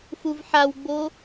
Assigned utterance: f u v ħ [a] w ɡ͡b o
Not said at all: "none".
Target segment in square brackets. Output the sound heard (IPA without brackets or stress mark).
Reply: a